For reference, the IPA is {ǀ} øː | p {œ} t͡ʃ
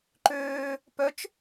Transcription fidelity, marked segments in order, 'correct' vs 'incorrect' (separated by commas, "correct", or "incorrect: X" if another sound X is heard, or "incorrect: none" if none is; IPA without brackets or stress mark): incorrect: ǃ, correct